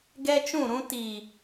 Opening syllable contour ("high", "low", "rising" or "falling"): high